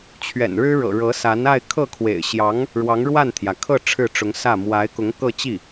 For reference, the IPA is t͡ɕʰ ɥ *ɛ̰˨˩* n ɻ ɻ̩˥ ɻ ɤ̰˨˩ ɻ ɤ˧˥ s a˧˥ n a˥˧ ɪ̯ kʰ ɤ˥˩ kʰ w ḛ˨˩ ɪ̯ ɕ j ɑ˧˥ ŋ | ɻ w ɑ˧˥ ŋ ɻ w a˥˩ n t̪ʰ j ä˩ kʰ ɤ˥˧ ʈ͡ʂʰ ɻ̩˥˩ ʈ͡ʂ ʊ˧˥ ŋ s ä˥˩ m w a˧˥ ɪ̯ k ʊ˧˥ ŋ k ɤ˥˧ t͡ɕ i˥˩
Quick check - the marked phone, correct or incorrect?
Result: correct